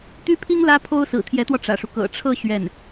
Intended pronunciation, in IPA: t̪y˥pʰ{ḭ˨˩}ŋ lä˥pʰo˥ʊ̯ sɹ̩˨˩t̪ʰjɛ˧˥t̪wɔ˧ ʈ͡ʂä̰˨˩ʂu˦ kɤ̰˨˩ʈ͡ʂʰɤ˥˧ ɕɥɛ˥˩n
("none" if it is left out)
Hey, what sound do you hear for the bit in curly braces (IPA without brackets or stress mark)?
i˥